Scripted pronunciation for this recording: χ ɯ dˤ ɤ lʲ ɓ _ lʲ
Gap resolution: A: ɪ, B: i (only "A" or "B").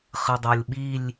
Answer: B